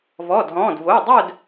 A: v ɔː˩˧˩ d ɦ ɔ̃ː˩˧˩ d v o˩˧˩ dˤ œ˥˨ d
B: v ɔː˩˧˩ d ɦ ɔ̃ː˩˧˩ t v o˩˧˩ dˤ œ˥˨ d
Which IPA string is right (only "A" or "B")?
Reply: A